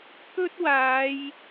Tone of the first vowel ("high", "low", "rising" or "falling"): high